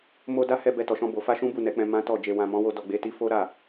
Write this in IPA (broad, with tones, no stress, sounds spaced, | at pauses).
m o˧ d a˦ h ɛ˧ b ɛ˧ t ɔ˨ ʃ ɔ̃˧ b o˨ f a˧ ʃ ũ˦ b u˦˨ n ɛ˨˦ k͡p ɛ̃˧ m ã˦ t ɔ˦˨ d͡ʒ e˨ w ã˨ m ɔ̃˨˦ w o˧ d ɔ˧ ɡ͡b e˦ t i˦ f o˦ ɾ a˦˨